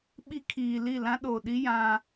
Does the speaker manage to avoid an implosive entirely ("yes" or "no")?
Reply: no